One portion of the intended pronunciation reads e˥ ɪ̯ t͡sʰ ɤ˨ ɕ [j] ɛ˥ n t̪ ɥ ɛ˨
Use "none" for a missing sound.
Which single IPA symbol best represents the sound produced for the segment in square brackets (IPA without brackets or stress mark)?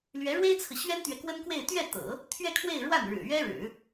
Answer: ɥ